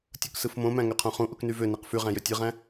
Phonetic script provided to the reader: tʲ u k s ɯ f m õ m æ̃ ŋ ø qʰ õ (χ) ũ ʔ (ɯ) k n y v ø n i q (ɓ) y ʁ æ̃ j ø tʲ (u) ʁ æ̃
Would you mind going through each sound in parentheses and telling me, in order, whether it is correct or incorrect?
correct, incorrect: u, incorrect: f, incorrect: ɯ

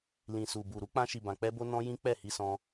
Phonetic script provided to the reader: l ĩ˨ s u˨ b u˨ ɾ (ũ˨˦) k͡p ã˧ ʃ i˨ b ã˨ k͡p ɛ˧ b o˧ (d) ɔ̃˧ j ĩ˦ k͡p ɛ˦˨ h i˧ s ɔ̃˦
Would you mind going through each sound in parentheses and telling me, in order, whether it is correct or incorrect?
incorrect: u˨˦, incorrect: n

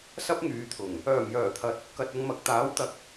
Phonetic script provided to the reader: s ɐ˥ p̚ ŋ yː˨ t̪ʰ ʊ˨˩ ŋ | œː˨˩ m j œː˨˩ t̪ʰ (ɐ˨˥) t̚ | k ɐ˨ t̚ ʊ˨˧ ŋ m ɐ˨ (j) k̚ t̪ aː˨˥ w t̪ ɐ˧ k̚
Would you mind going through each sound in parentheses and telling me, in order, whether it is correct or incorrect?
correct, incorrect: none

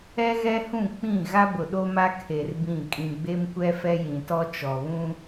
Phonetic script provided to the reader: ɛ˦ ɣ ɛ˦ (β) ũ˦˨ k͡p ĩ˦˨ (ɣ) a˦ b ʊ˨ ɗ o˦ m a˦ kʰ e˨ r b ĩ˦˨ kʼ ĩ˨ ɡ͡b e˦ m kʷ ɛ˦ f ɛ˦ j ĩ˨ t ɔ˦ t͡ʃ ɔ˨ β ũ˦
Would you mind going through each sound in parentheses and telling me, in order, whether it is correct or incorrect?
incorrect: h, correct

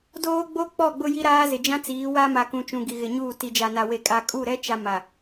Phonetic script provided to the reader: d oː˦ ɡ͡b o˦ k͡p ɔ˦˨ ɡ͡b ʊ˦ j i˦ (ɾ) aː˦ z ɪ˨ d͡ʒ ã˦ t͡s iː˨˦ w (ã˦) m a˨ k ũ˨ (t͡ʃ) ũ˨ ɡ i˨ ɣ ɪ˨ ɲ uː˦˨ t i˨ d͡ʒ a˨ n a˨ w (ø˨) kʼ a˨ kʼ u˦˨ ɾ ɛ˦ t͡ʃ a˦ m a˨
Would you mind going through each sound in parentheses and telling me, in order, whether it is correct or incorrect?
correct, incorrect: a˦, correct, incorrect: e˨

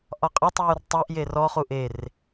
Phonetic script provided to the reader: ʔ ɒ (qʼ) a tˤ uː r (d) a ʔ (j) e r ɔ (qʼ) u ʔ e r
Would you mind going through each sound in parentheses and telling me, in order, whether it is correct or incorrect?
correct, incorrect: tˤ, correct, incorrect: χ

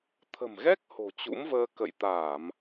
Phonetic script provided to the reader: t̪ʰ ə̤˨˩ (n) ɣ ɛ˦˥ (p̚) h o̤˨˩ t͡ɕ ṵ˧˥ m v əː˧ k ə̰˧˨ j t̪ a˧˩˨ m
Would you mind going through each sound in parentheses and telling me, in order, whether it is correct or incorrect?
incorrect: m, incorrect: k̚

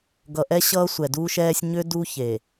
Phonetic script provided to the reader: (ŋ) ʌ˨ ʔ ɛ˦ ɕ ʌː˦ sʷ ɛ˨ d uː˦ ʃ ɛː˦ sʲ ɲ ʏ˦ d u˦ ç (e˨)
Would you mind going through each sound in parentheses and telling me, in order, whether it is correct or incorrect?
incorrect: ɡ, correct

